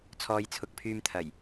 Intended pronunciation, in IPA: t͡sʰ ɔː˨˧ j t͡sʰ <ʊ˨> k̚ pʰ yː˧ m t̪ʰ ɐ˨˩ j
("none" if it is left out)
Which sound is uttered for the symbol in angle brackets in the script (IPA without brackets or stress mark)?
ʊ˨